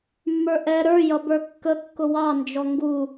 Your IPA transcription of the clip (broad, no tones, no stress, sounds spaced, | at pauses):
mː ə˞ ʔ ɛ ɾ ə˞ j ʌ b ə˞ kː ə kː ʊ w ɑ n d͡ʒ ɔ ŋ ɡ u